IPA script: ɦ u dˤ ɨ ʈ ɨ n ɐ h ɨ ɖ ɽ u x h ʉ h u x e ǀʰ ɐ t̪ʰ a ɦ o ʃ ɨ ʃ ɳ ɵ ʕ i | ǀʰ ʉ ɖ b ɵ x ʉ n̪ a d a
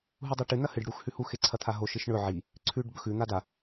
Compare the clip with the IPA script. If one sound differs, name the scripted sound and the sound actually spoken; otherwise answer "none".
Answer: none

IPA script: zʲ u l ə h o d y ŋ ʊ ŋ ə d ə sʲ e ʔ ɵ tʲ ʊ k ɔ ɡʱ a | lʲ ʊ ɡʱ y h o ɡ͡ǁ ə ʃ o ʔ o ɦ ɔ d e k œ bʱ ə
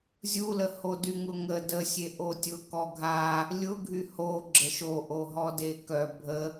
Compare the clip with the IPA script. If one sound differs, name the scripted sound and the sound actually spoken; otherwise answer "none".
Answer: ɵ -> o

